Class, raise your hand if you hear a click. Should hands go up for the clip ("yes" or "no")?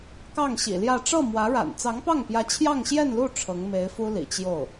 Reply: no